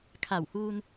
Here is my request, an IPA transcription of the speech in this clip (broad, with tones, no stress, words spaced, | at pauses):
kʰa˧˩whuː˧n